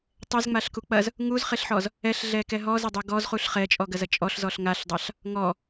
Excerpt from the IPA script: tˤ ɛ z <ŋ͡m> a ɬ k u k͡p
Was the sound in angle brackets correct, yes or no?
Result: yes